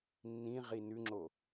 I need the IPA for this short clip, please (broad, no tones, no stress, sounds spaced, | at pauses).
nː ĩ ʁ i n ʉ ŋ͡ǁ o